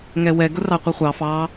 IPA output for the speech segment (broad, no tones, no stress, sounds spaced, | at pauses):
ŋ ɛ w ɛ ɡ ʊ r ɑ qʷ ʌ χʷ ɑ f ɑ